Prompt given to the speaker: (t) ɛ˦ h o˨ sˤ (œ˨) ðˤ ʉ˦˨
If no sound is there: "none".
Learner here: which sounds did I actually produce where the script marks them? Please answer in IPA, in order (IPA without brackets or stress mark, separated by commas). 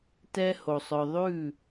t, œ˨